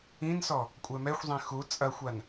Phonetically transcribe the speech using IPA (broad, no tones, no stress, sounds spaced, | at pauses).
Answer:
ĩ n s ɔ | kʷʼ ɛ m ɛ xʷ zˤ ẽ x u t͡sʼ ɐ xʷ a n